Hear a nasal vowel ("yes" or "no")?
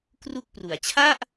no